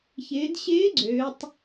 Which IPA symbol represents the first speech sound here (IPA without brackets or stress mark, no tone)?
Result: ç